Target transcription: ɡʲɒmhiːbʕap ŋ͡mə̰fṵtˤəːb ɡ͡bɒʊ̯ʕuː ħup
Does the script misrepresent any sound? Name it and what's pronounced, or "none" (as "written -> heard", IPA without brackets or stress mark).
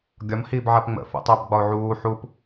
none